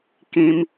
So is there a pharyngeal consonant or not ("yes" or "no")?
no